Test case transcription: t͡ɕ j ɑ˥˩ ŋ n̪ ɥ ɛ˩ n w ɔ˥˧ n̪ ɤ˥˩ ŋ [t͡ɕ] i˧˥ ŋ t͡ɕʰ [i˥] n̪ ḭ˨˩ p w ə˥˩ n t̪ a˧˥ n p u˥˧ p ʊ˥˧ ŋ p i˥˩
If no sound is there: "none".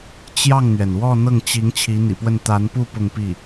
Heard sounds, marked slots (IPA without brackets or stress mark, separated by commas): t͡ɕ, i˧˥